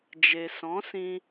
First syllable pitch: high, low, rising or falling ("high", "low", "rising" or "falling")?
low